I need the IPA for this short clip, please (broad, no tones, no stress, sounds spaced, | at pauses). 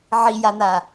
ʕ i j a n̪ a